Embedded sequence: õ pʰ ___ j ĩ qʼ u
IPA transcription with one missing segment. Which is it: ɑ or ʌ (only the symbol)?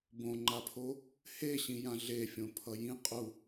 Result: ʌ